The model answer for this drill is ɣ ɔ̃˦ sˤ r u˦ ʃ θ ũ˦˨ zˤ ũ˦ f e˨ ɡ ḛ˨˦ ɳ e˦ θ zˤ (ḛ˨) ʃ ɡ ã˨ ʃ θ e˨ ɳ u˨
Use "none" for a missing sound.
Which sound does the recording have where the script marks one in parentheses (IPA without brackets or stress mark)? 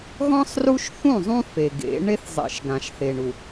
ḛ˨